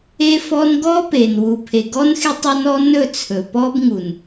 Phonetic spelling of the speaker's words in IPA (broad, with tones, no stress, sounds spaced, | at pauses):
e˦ f ɔ˦ n ɡ ɔ˦ p e˨ n w u˨ pʰ e˨ ɡ ɔ˦ n x e˦ tˤ ɔ˦ n ɔ˦ n ɵ˦˨ t͡sʰ ɵ˨ p ɔ˦ b ŋ u˨ n